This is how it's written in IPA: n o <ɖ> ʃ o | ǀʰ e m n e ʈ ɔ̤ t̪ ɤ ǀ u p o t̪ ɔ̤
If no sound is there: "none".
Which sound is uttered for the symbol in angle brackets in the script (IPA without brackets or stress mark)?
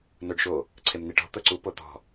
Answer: ɖ